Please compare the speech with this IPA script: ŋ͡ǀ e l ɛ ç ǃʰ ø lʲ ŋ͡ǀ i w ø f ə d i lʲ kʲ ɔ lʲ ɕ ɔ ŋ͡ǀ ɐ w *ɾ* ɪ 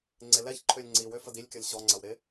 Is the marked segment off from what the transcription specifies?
no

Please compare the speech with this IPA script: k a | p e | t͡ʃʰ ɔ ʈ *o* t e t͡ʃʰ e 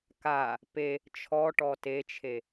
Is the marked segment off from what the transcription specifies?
yes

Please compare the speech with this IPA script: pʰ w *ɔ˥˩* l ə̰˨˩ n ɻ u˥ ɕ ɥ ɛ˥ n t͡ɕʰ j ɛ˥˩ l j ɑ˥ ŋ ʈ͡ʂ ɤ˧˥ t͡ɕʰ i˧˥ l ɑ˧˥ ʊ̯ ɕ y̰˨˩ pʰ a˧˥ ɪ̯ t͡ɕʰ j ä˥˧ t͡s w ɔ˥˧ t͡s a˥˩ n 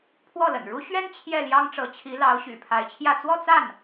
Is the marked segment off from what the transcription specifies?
no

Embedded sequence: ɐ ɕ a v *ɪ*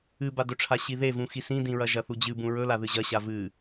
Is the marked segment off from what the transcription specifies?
yes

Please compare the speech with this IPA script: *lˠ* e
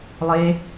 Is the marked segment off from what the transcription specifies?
no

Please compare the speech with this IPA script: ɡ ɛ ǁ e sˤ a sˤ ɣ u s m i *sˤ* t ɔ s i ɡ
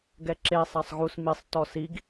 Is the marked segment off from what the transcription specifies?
no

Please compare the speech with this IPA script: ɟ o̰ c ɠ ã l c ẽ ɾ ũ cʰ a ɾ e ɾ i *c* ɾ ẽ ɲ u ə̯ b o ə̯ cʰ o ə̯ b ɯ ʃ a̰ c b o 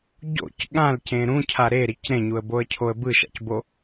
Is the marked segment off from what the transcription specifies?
no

